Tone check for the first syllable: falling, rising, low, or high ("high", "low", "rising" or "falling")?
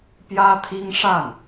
high